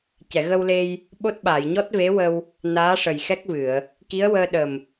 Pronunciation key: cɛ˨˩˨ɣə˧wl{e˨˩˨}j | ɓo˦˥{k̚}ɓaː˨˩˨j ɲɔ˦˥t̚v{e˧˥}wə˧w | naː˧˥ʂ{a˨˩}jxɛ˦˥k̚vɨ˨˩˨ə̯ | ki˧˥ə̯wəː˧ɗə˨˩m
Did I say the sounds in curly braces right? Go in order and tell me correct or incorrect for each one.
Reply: incorrect: e˧, incorrect: t̚, correct, incorrect: ə˨˩

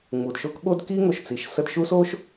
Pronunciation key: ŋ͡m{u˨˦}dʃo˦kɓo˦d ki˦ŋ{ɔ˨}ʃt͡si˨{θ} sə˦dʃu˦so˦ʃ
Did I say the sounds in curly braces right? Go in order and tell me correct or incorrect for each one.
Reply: incorrect: u˨, incorrect: o˨, incorrect: ʃ

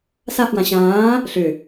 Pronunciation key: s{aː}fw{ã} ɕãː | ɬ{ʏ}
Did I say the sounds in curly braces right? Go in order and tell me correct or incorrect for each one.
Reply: incorrect: a, correct, correct

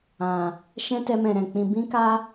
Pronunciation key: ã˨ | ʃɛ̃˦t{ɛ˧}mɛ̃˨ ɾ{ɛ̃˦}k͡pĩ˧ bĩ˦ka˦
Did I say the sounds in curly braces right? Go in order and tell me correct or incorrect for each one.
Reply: correct, incorrect: ɛ̃˨

